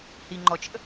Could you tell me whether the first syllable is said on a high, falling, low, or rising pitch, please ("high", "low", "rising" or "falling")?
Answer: low